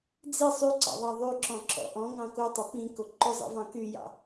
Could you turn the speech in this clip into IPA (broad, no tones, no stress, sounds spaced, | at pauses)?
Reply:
d͡z i sˤ y ǀ ɑ̰ ðˤ ɑ ðˤ y ǁ ɔ̃ ǁ ɔ̰ ʔ ɔ̃ ŋ ɑ̃ k o tˤ o p ĩ k o ǃ ʊ zˤ ḭ v ɑ̃ k y j ɑ̰